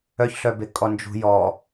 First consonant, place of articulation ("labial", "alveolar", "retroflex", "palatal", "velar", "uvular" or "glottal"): palatal